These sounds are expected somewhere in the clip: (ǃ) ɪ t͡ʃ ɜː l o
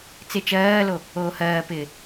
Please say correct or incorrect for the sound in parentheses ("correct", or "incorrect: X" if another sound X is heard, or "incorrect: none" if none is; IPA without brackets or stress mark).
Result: incorrect: t͡s